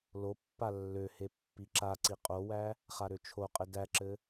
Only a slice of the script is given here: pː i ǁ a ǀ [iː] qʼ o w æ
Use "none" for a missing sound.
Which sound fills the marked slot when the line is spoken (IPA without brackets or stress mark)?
i